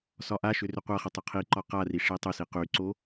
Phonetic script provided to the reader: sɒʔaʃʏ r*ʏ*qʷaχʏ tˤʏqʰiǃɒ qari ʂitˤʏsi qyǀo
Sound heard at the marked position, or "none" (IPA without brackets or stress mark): ʏ